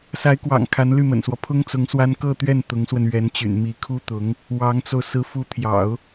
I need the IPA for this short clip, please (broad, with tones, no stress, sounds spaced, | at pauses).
s a˧˥ ɪ̯ k w ɑ̰˨˩ ŋ kʰ a˧˥ n l y˥˩ m ə̰˨˩ n s w ɔ˦ pʰ ʊ˥ ŋ t͡s ʊ˧˥ ŋ s w a˥ n k ɤ˥˧ t̪ ɥ ɛ˥˩ n t̪ ʊ˧˥ ŋ s w ə˧ n ɥ ɛ˧˥ n t͡ɕ y̰˨˩ n m i˧˥ kʰ u˥ t̪ ʊ˧˥ ŋ | w ɑ˧˥ ŋ t͡s o˧ ʊ̯ s ɹ̩˧˥ f u˧˥ t̪ʰ j ɑ̰˨˩˦ ʊ̯